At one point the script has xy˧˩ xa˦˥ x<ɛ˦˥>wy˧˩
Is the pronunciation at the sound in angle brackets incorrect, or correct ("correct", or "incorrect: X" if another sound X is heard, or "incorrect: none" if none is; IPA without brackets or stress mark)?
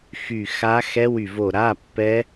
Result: correct